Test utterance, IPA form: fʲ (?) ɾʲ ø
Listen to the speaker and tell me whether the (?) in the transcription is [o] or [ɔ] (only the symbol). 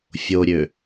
o